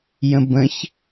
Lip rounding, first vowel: unrounded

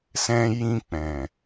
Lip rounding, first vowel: unrounded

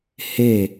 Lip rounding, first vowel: unrounded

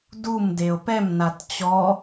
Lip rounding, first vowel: rounded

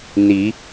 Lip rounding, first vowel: unrounded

